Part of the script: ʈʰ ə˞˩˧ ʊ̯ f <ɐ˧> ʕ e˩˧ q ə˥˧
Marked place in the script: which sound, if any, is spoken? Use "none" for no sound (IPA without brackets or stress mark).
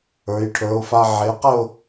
a˧